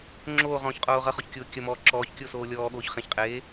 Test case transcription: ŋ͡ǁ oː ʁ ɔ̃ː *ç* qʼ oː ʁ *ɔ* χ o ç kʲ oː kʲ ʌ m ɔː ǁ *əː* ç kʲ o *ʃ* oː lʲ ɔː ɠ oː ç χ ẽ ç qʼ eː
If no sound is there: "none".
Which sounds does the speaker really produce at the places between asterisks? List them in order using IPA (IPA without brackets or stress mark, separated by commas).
ç, ʌ, ɔː, s